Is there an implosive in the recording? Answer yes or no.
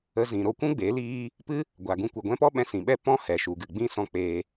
yes